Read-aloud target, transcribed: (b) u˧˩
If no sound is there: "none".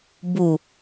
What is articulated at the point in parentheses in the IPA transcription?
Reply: b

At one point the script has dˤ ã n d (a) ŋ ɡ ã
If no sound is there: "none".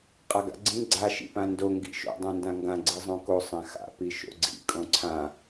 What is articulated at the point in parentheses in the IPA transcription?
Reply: ã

